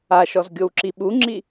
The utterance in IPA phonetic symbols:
aʃɔzɡʲow ǁiɓuŋ͡ǁi

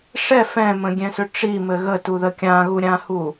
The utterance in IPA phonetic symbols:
ʂɛ fɛ̃mə̃ɡʲɛ̃sʏ ʈ͡ʂimɘ ɣətuðə kʲãɣuɾʲãhu

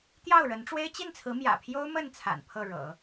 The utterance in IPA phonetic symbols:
t̪jɑ˥˩ʊ̯ɻə˧˥nʈ͡ʂwe˥ɪ̯ t͡ɕi˥˩nt͡sʰɹ̩˧˥mjä̰˨˩pʰjo˥ʊ̯ mə˥˩nt͡sʰa̰˨˩n pʰɤ˥˩ɻɤ̰˨˩˦

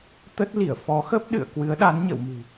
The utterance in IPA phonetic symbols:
t̪ə˦˥t̚ li˧˩ə̯fɔ˨˦xə˦˥p̚ ɗɨ̰˧˨ə̯ kwɨ˨˦ə̯ɗa˨˦nɲə̰˧˨wmɨ̤˨˩

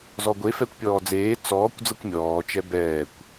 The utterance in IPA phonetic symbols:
zɔɡʷe fɛkʷpʲɔːd͡zeː t͡sɔːkʷ d͡zɤkʷmʲɔː t͡ʃɛbɛːkʷ

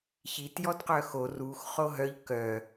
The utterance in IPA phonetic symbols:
çit jɔdqœxo rux χoɦœʎ kœ

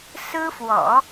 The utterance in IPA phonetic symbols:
sɹ̩˥fwɔ̰˨˩˦

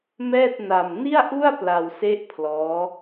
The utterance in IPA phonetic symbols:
mɛː˥˩t̚na˧m ni˥˩a̯ʔu˥˩a̯ pla˧wse˥˩ʔpʰlɔː˦˥

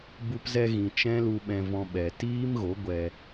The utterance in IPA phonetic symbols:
bu˧pzɛ˧ɣĩ˨ t͡ʃɛ̃˦lu˧ɓɛ̃˧vɔ̃˧ ɓɛ˨ tiː˦mɣo˨˦ɡʷɛ˧

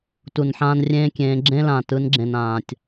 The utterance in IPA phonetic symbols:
tu˨nħãː˦nrʲẽː˦kʲẽː˨˦ ɡ͡ǁẽ˦lã˨ tɯ˨˦nɡ͡ǁẽ˨n ãː˨tʲ

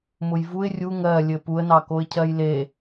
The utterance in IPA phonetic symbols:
mʊjvuɪ̯ rʲu ŋɜ lʲɘpuə̯ nɑkoɪ̯cʰɜjle

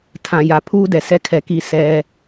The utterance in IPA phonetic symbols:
tʰã˨ja˨ pʰuː˦dɛ˨sɛ˦kʰɛ˨ ki˦sɛ˦

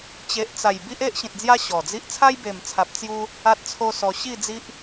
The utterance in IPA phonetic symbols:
t͡ɕe˨ʔt͡sa˨˩j bi˦ʔe˦ʔɕĩ˨t̚d͡zja˦ ɕɔ˨˩d͡zi˦ʔ t͡sʰa˦jbe˨˩mt͡sʰa˨p̚ t͡sju˦ | a˦t̚t͡sʰo˦sɔ˧ ɕi˥˧d͡zi˦ʔ

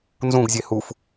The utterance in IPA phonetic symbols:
nzũɡzʲe huf

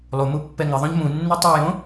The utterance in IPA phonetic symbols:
lˠumu pːɛŋɪðˤõʎ mũnːu tˤujõ

